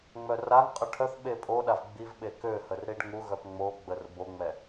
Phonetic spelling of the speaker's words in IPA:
ŋ͡m œ r a ŋ qʼ ə ʈʰ œ θ ɓ e pʼ o ɗ a v ɡ͡b i v ɓ e k ø h ə r ɾ i ɖ ŋ u ɣ œ p ŋ͡m o ɡ͡b ə r b o ŋ͡m ɛ

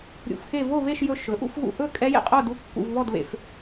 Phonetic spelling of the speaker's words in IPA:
ɾʲ ṵ˧ f x e˥˧ v o˥˧ β e˥˧ ʃ j ɵ˧ ʃ ɵ˩˥ ʔ ṵ˥˧ f ɣ ṵ˧ ʔ ɵ˥˧ kʼ ɛ˦˥ j ḛ˧ qʼ o˥˧ d u˦˥ kː ṵ˧ v β ɔ˥˧ d β ḛ˧ f

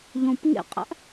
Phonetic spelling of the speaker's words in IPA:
ʎ õ p ŋ ḛ qʼ æ̰ ʔ

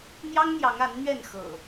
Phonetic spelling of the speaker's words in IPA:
n̪ j ɑ˦ ŋ n̪ j ɑ˨˦ ŋ a˨˦ n n̪ ɥ ɛ˥˨ n x ɤ̰˨˩

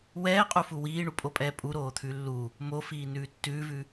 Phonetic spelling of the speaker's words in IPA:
w ɛː qʼ u f u w iː ɳ u pʼ o pʼ ɛː pʼ u ɾ oː t̪ʰ ʉ lː u | m o f iː n ʉː tː ʉː v ʉ

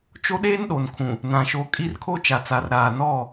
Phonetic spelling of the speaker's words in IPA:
t͡ʃ o˦ ɗ eː˦ n ɗ o˨ n kʰ ũ˨ | n ã˨ ʃ o˨ kʼ i˦ r kʰ o˦ t͡ʃ a˨ t͡s aː˨ r ɾ aː˨ n ɔ˦˨

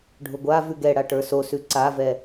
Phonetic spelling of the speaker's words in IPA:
ɖʱ ʊ ɡʷ a v ʉ ɡ ɛ ɽ a ʈ ə˞ s o s ʉ ǀ a v ɛ

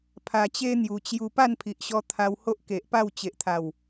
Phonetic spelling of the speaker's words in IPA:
pʰ a˨˩ t͡ɕ e˦ n̪ j u˨˩ t͡ɕ j u˧ p a˥˧ n pʰ i˨ ʔ ɕ ɔ˧ t̪ʰ a˧ w h o˦ ʔ k e˨ ʔ p a˥˧ w t͡ɕ e˨ ʔ t̪ʰ a˨˩ w

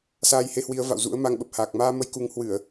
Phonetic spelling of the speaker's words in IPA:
s aː˧ j h e˧ h w i˨˦ ə̯ v a̰˧˨ w z ṵ˧˥ ə̯ m a˧ ŋ ɓ ə˨˩ p̚ h aː˨˩ k̚ m aː˧ m ə˧ j k u˨˦ ŋ h w ɨ˧˩˨ ə̯

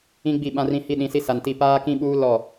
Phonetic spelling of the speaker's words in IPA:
ĩ˦ ɡ͡b i˦˨ ɓ ã˦ r ĩ˦ h i˦ ɗ ĩ˨˦ s i˦ s a˨ n t i˦˨ p aː˦ k ĩ˦ ɓ uː˦ l ɔ˦˨

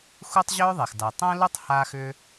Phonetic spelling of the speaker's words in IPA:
x u˥ tˤ ʑ ø˥ ðˤ e˩ x d a˩ tˤ ɐ̃˥ l u˥ tˤ h a˥ x ʏ˥

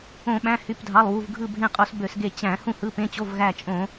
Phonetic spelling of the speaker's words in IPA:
õ˧˩˧ ɓ æ̃˩˧˩ h y˩˧˩ p dʱ ɑ˩˧˩ lˠ w u˩˧˩ v ɡʱ ɯ˧˩ bʱ ẽ˧˩ qʼ o˧˩˧ s b ø˧˩˧ s ɡ e˧˩ t͡ɕ æ̃˧˩˧ h ũ˧˩ h ɯ˩˧˩ p ẽ˩˧˩ t͡ɕ o˩˧˩ v ɣ æ˧˩ t͡ʃʼ õ˧˩˧

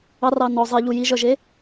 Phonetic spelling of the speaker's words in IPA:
ɑ r ɑ n ɔ zˤ i ʎ u j i ʒ œ ʒ e

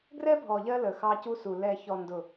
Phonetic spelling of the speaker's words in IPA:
ɡ r ɛ˦ bʱ ɔ˨ ʎ ɜ˧ l əː˨ x ɑ˧ c u˧ s u˨ l ɛ˨ ç ɔ˨ n d ʊ˨

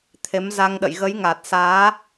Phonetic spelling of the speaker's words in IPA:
t̪ʰ e˨˦ m z a˧ ŋ ɗ ə̰˧˨ j ɣ ə˨˦ j ŋ a˨˩ t̚ s aː˨˦

